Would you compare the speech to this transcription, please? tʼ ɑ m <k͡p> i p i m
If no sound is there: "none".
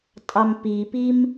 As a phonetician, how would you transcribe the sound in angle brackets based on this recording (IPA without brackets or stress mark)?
p